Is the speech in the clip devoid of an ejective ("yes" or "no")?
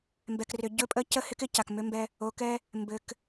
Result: no